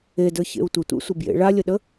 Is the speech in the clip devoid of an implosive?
no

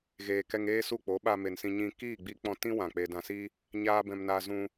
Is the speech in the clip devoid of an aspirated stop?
yes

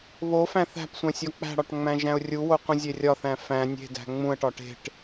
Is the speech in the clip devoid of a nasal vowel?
no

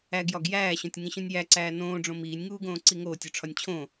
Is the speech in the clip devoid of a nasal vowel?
no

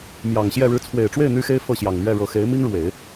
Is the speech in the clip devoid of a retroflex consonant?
no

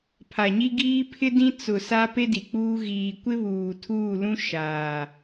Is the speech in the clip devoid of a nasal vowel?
no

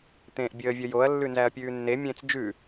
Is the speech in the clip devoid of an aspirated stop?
yes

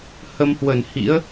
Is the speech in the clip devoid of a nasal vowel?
yes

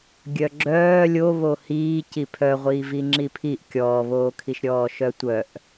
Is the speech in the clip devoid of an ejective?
yes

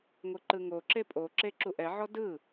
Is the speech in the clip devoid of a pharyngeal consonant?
no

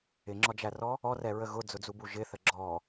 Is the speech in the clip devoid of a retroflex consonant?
yes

